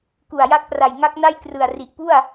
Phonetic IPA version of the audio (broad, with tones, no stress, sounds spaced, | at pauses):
k u˨˩ a̯ j a˦˥ k̚ p r a˨˩ j ŋ a˦˥ k̚ n a˥˩ j k r ɯ˨˩ a̯ r i˨˩ ʔ p u˥˩ a̯